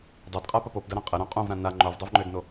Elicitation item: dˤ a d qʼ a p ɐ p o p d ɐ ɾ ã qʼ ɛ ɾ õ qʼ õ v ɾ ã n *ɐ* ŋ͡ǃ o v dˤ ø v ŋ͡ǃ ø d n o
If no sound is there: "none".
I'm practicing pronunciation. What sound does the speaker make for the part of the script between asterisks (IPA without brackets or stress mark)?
a